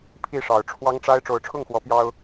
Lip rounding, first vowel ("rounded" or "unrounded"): unrounded